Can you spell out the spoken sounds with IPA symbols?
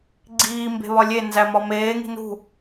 ɡ͡ǀ iː m b e̤ β ɒ lʲ e n z æ m ɒ m eː ŋ i̤ n ṳ

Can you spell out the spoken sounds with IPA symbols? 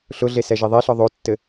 ɬ ʊ ɮ e s ɛ ʒ i ðˤ i ɬ ɒ ðˤ o tː ɘ

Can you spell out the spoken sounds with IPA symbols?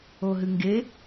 o ɦ ɨ ŋ ɡ e

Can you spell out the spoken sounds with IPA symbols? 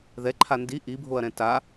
ð ɛ ǃʰ a n d i ʔ i bʱ o ɐ̯ ɾ ɛ̃ t a

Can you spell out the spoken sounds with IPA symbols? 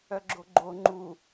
œ ɡ͡ǁ o ɡ͡ǃ o ŋ͡ǃ u

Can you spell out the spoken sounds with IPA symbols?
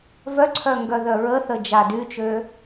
v œ ǀʰ œ ŋ ɡ œ ð œ ɹ ə θ ə d͡ʒ a d y t͡ʃ ø

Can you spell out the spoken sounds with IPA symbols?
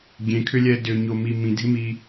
ɡʲ ẽ kʰ ʏ lʲ ɛ d ʏ ɲ o m i m ĩ dʱ ɪ m i

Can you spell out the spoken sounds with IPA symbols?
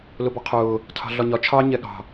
l ʊ b ɑ qʰ ʊː | tʰ ɑ̤ ɮ ɒ ɲ ɒ t͡ʃʰ ɑ ɲ ɛ ɠ ɑ̤

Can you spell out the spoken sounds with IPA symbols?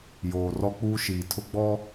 j oː˨ r ɔ˦ k͡p uː˦ ʃ iː˨ tʰ ʊ˦ ɡ͡b ɔ˦

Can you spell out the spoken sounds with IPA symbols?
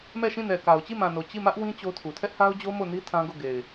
m ɛ˦˨ ʃ ĩ˦˨ n ɛ˨ k a˨ ʊ̯ t͡ɕ i˦˨ m ã˨ n o˨ t͡ɕ i˦˨ m ä˦ ʔ w ĩ˦ t͡ɕ o˦ tʰ u˨ tʰ ɛ˦ ʔ h a˦ ʊ̯ d͡ʑ o˦ m o˦˨ n i˦ tʰ ã˦ ɡ o˦˨ ɡ e˨ ɪ̯

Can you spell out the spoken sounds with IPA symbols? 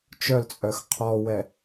t͡ʃ œ l t͡sʼ œ x qʰ ɔ w ɛ

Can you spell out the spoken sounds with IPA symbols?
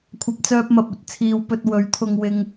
kʷʰ ɐ˨ p̚ t͡s œː˧ p̚ m ɐ˨ p̚ ɵ˧ t̚ t͡sʰ iː˧ w p ɵ˧ t̚ w ɵ˨˥ ɥ t̪ʰ ʊ˧ ŋ w ɪ˧ ŋ

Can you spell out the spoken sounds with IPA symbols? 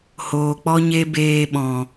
h oː˨ k͡p ɔ˦ ɲ e˦ b eː˧ ɓ ɔ̃˨

